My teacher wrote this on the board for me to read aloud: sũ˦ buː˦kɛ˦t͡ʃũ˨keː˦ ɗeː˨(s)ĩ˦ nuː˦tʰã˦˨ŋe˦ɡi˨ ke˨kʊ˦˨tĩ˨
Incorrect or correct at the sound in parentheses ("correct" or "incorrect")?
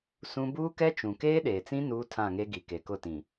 incorrect